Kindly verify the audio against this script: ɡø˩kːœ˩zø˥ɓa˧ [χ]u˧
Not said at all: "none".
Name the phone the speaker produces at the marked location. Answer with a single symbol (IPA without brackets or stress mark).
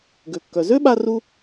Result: r